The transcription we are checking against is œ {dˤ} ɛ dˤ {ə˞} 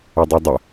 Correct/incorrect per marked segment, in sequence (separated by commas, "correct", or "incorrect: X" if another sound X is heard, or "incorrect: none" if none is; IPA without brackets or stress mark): correct, incorrect: ə